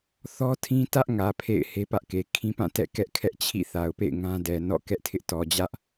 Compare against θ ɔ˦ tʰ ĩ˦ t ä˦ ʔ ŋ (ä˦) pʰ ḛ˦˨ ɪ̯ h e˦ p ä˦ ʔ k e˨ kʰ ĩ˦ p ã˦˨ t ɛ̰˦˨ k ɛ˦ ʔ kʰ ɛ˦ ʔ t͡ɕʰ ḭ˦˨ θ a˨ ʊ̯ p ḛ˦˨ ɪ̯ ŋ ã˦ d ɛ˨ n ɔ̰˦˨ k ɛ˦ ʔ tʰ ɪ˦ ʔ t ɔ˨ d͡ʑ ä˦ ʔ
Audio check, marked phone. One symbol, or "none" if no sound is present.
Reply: ä˨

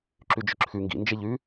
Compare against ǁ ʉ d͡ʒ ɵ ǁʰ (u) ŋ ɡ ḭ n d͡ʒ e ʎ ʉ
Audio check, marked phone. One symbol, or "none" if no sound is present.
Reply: ʉ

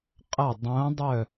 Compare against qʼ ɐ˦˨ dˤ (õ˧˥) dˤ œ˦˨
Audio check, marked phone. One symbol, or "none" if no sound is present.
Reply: õ˧˥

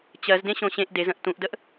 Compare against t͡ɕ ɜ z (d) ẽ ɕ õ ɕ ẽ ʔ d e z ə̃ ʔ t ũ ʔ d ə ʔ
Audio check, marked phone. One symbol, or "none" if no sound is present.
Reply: d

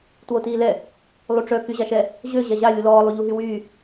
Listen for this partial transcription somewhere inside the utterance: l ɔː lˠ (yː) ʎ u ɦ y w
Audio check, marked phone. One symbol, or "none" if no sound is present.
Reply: y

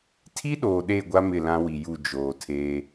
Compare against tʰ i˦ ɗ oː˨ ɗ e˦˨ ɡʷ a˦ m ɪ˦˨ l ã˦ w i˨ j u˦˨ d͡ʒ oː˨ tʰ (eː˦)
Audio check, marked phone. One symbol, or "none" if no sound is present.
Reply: eː˦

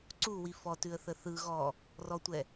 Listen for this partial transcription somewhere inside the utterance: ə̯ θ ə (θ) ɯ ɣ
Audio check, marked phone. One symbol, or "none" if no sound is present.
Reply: θ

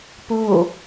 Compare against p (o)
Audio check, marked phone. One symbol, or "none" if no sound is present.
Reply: o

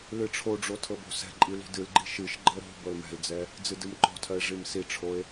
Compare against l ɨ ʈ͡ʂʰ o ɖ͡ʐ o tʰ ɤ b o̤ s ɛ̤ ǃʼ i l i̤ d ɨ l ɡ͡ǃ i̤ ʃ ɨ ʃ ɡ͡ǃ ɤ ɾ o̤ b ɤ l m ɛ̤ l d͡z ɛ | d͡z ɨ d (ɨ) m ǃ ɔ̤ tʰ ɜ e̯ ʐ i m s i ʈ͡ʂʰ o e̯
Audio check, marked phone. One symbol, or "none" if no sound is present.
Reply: ɨ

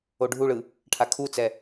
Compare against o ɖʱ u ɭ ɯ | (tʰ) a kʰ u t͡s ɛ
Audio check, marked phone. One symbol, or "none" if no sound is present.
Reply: ʈʰ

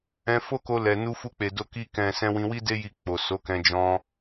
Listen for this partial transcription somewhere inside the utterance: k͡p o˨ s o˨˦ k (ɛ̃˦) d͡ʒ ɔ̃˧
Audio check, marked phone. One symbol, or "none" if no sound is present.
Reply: ɛ̃˧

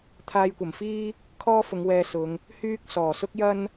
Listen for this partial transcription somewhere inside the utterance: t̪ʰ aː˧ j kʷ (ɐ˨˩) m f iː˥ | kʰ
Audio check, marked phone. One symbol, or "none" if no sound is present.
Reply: ɐ˨˩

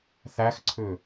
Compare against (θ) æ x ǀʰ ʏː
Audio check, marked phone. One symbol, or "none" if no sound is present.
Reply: θ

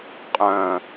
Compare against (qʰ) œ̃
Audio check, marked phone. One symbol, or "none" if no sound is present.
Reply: qʼ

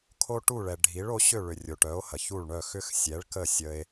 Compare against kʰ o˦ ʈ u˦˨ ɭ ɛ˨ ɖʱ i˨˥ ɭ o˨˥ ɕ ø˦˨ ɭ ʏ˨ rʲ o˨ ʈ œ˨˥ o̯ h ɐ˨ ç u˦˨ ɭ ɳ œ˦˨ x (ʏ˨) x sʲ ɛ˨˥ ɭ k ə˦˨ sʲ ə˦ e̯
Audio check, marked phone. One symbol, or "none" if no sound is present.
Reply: ʏ˦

